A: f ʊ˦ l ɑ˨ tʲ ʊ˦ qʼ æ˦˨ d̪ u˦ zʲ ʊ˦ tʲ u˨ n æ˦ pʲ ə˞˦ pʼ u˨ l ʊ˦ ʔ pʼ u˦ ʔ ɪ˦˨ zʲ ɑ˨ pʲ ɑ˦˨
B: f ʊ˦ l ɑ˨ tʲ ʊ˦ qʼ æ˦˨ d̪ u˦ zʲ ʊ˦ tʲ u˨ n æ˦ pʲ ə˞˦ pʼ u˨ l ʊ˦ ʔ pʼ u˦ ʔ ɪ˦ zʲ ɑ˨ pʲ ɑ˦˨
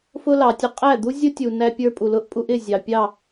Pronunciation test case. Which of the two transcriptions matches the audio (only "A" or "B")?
A